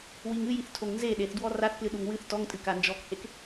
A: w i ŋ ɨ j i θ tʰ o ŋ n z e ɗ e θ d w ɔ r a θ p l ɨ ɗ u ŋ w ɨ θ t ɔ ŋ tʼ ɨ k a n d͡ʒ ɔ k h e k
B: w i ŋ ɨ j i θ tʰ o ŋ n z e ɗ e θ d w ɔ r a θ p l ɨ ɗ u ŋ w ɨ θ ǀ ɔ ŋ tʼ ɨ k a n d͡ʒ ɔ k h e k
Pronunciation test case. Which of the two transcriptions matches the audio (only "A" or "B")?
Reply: A